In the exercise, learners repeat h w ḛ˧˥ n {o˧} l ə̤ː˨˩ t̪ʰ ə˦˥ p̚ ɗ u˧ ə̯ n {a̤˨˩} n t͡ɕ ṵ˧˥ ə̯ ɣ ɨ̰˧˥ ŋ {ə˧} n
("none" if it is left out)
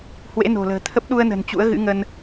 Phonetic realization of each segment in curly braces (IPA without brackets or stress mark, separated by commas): o̤˨˩, ə̤˨˩, ə˧